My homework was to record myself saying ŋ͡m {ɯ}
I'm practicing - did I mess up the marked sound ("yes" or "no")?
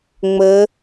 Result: yes